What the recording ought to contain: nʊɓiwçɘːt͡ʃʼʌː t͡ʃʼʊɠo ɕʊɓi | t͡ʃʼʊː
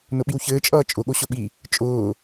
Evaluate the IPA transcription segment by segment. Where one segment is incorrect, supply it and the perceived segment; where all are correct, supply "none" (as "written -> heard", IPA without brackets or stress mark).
none